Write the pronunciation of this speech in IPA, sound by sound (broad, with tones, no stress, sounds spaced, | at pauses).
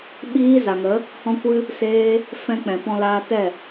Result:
ɓ iː˦ z a˨ ŋ ə˨˦ | h ɔ̃˦ kʷ ɨ˦ | s eː˦ | f ɛ̃˦ k͡p ɛ̃˨ p ɔ̃˧ l aː˧ t ɛ˦˨